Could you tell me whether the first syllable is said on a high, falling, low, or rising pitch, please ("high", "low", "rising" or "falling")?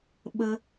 high